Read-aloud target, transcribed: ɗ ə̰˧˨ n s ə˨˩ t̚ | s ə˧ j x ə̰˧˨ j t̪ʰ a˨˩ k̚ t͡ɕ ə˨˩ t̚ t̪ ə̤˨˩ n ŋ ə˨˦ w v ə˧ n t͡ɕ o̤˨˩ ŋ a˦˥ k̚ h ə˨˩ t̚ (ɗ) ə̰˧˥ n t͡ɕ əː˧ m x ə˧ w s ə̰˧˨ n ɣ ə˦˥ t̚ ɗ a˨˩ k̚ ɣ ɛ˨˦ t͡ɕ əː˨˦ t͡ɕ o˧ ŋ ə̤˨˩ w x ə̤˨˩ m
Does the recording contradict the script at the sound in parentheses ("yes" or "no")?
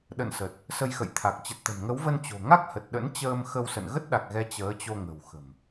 no